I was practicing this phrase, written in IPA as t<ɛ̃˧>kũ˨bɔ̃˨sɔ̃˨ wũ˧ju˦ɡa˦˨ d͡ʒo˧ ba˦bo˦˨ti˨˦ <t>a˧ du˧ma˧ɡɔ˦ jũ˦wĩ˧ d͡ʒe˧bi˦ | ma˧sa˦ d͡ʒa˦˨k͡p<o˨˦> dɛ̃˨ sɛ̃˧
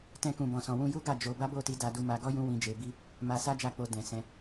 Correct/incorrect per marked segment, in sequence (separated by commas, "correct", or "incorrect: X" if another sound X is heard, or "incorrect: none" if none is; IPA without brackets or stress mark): correct, incorrect: d, incorrect: o˧